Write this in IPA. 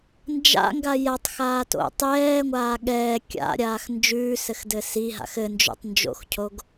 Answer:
nd͡ʒa̰ŋɡa jatˤxaːto̰ tˤɛːŋʷaː ɠɛː kʲa̰ɾʲaːx nd͡ʒʉːsɘxdɘ siɦa̰x ɘnd͡ʒo̰tˤnd͡ʒo̰xcʰoɡ

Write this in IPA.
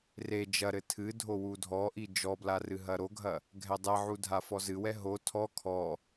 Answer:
re d͡ʒɐɾɘ tʰɨdʱo wudʱɔʔi d͡ʒɔbla rɨɦɐɾoɡʱɐ | ɡʱɛdˤɛʕu dʱafɔzɨwɛ ɦo tʰɔ kʰɔ

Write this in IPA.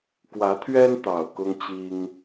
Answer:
kwä˨˦t̪ʰɥɛ˦n t̪ɑ˨˩ʊ̯kʊ˦ŋt͡ɕi˦ŋ

